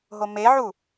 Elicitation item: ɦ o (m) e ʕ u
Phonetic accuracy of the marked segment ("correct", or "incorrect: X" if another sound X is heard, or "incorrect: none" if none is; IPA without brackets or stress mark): correct